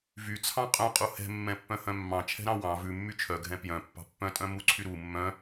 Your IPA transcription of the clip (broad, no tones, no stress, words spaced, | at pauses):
vyt͡sʰɑ̃ qʼœ̃qʼu hɛ̤mːɛ̃pːœ̃hœ̃ mːɑ̃t͡ʃʰɛ̤ɾɑ̃ wɑ̃ vʉmːy t͡ʃʰœɡʱɛ̃ pjœ̃pːɑ̤ pːœ̃tʼœ̃ muǀʰy ɾu mːœ̃